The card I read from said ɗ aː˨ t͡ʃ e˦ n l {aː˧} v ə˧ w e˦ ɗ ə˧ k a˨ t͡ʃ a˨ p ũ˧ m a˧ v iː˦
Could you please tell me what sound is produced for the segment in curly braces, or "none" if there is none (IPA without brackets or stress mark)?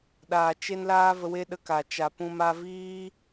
aː˦